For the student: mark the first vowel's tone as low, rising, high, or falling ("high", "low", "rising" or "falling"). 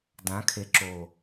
rising